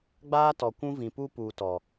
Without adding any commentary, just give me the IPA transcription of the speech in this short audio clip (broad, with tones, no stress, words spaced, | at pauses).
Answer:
ɡ͡baː˦tɔ˨kʷũ˦vĩ˨ pu˦puː˨tɔ˨